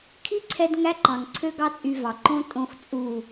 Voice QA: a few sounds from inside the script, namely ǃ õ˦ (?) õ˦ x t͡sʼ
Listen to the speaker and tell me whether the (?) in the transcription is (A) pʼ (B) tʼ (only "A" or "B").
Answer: B